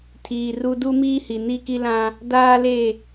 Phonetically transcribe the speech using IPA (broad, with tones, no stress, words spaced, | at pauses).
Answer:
tʰiː˨ru˦ du˦miː˦hi˨ ni˦ki˦lã˦ | daː˦le˦˨